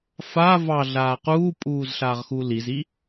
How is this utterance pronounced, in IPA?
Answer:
fa vɑɮaː quːpʼuːzɬaːʁxu lizi

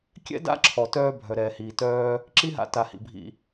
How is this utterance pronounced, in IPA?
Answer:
kʲɛ̰˥ da̰˥ǁʰɔ˩tœː˧ bʱœ˩ɾɛː˩hiː˩ tœː˧ | ǁi˥ɦa̰˧ ta˩hḭ˩bʱḭ˩

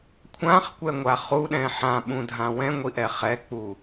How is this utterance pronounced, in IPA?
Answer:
kʷʰãχkʷɛŋʷa χuɗɛ̃ ħãɓũdʱã wɛ̃ŋʷiʔɛ χɛk͡pu

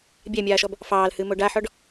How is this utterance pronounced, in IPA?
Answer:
bʲæmʲaːʃɔb | fɑːlhɨːmo ɖaħɔɖ

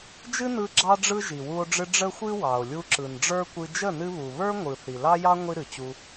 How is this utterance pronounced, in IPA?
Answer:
d͡ʒɨ˦nɯ˧ ɡ͡ǁɑ˦ɖ͡ʐɯ˦ ʒi˨wu˧o̯ɖ͡ʐɨ˧ ɖ͡ʐə˦xʷɨ˦wɑ˨o̯ lʲu˧ǁɯ˨nɖ͡ʐə˞˦kʷɨ˧ d͡ʒə˦˨nɨ˧βu˨ βə˞˦ŋʷɯ˨ θi˨lɑ˦jɑ˦ ŋʷi˦ɾɨ˨ t͡ɕu˧

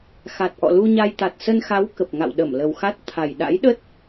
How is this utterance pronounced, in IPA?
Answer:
xa˨˩t̚ʔɔ̰˧˨lu˧ɲa˧j t̪a˨˩t̚sə˧nxa˨˦w kə˨˩p̚ŋa̰˧˨w ɗə˧˩mlə˨˩wxa˦˥t̚ t̪ʰa˨˩j ɗa̰˧˥jɗə˦˥t̚

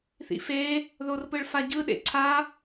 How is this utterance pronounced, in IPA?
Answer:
θḭfe | ðorpɯɭfaɟɯ ɗḛǀʰa

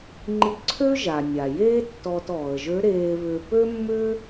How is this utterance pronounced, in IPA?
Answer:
ŋ͡ǃi˧ǀʰø˥ ʒa˩nʲa˩jeː˥ tːɔː˧t ɔː˩ə̯ʒø˧˥ ɾeː˧βʏː˧ pø˥mːʏː˥

